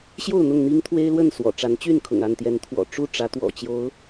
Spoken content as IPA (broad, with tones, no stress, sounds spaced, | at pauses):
ɕ j o˥˨ ʊ̯ n̪ ʊ˥˨ ŋ n̪ i˦ ŋ t̪ʰ w e˦ ɪ̯ l w ə˥˨ n s w ɔ̰˨˩ ʈ͡ʂ a˨˦ n t͡ɕ y˥˨ n kʰ ʊ̰˨˩ ŋ a˥˨ n t̪ j ɛ˨˦ n t̪ʰ w ɔ̰˨˩ ʈ͡ʂ u˥˨ ʈ͡ʂ ä˨˦ t̪ w ɔ̰˨˩ t͡ɕ j o˨˦ ʊ̯